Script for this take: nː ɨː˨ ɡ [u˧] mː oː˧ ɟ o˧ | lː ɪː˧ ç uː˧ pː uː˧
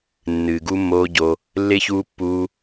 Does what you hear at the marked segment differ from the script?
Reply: no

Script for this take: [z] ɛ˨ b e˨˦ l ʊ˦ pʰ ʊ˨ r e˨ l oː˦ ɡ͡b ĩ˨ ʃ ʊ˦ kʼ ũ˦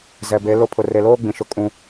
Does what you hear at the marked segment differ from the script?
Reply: no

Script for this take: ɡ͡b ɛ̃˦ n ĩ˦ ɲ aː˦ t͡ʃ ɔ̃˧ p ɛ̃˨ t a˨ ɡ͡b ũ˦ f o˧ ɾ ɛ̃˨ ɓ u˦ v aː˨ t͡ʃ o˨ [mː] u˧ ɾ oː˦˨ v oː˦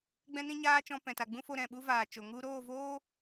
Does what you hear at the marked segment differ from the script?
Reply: yes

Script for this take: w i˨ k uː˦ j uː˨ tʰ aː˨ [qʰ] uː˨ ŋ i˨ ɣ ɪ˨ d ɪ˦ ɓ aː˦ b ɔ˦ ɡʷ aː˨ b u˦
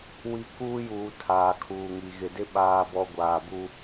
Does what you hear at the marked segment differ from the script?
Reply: yes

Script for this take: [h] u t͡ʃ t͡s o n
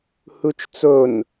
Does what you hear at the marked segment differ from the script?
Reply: no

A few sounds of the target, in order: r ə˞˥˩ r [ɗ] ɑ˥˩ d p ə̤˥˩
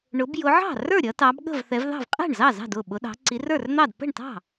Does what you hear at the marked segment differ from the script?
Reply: yes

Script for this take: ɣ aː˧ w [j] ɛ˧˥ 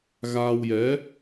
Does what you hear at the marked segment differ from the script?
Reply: no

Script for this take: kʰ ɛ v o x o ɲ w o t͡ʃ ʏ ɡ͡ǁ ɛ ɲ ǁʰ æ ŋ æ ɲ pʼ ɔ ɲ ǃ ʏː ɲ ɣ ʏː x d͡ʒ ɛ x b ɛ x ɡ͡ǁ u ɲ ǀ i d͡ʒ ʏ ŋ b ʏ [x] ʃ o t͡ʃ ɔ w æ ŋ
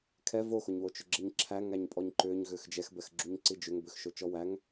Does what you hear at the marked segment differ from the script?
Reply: no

